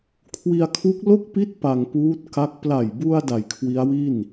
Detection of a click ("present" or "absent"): absent